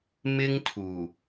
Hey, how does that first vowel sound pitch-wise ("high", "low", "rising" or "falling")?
high